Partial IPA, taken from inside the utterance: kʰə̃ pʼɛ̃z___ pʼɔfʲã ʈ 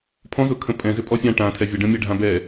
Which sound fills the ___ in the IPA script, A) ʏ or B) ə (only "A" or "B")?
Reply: A